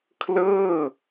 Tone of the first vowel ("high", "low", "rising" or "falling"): falling